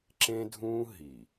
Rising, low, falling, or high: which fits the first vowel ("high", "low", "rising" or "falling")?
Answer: high